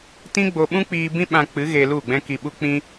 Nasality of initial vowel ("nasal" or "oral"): nasal